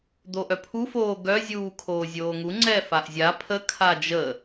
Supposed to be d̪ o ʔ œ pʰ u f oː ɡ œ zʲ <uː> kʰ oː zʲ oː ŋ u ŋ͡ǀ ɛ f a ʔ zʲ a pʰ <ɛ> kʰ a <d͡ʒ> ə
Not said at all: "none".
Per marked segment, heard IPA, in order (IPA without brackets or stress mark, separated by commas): uː, ə, d͡ʒ